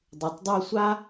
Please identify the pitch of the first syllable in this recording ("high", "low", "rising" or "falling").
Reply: low